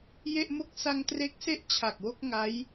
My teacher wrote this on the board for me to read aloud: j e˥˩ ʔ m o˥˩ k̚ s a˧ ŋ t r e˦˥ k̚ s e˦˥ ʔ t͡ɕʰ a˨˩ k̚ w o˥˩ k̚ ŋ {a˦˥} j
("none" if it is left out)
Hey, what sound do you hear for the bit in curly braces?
a˦˥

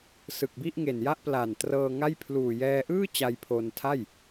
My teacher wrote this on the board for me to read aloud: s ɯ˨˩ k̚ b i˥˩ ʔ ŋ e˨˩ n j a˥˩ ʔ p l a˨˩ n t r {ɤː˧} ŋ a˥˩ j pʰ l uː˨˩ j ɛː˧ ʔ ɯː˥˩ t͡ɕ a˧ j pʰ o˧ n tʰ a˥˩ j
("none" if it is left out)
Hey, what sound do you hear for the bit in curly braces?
ɤː˧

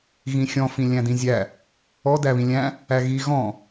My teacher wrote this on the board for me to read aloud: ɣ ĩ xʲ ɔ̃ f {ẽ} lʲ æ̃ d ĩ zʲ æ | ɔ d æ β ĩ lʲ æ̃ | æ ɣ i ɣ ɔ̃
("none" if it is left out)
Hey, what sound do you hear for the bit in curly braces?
ĩ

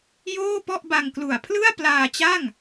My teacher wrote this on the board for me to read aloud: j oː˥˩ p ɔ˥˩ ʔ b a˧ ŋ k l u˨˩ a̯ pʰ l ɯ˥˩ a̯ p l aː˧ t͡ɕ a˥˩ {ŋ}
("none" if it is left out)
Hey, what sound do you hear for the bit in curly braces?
ŋ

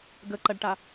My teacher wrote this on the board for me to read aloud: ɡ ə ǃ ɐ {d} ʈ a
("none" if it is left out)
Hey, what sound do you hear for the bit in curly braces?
ɖ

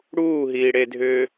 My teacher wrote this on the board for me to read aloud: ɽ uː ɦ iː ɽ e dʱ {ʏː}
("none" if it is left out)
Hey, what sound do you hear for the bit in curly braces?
ʏː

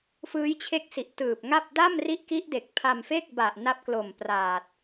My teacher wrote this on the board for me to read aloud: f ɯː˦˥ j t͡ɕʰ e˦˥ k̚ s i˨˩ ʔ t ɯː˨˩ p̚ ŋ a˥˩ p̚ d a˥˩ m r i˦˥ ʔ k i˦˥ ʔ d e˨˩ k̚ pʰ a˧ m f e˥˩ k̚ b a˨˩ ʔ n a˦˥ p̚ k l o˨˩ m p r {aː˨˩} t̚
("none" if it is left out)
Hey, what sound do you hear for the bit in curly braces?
aː˨˩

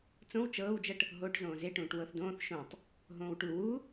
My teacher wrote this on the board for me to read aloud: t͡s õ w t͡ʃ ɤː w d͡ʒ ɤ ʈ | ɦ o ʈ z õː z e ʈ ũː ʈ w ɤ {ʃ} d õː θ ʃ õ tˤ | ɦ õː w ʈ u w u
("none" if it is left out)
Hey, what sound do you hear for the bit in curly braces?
θ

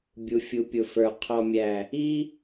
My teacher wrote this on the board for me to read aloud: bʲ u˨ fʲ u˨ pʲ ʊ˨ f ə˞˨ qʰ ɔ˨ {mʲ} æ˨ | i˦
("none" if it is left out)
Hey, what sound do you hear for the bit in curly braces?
mʲ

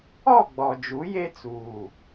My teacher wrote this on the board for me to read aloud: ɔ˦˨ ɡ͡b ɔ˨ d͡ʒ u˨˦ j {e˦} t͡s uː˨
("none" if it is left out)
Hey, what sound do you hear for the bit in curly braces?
e˦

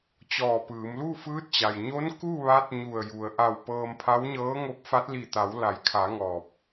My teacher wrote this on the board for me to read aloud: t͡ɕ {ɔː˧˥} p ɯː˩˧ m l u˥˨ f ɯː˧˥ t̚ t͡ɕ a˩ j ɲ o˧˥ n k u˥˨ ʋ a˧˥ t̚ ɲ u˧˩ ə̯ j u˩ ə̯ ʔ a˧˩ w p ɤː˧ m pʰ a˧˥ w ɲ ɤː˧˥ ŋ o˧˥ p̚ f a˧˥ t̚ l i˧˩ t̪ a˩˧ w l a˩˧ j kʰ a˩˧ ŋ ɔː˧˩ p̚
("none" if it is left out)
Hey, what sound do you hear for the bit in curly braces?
ɔː˧˩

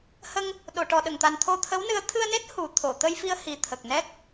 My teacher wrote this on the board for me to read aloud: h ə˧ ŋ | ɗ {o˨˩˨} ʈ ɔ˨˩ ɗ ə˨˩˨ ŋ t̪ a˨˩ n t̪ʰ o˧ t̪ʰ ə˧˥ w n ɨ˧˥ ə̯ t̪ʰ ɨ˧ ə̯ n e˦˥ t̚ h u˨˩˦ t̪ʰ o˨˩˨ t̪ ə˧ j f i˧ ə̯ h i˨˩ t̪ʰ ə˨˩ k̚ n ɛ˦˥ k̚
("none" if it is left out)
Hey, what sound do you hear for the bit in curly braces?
o˨˩˨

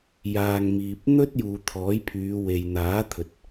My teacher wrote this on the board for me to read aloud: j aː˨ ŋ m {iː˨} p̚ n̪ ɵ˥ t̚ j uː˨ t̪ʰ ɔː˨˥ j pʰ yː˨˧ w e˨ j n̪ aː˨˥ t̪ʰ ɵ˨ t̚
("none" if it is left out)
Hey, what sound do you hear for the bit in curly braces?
iː˨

